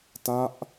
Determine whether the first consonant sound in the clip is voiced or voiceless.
voiceless